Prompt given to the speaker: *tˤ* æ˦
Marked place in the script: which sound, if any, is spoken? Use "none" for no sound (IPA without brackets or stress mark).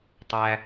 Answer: tˤ